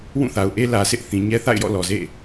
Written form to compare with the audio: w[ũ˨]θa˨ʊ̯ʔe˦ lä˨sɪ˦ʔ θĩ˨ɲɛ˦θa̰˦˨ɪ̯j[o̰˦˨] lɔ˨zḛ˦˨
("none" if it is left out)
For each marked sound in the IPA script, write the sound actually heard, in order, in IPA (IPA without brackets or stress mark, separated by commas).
ũ˦˨, ɔ̰˦˨